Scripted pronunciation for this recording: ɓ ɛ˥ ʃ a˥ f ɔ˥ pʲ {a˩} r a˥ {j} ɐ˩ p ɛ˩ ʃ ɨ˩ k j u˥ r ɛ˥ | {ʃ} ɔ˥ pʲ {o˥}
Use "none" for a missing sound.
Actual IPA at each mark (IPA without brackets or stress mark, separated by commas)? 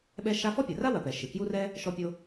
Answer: a˩, w, ʃ, o˥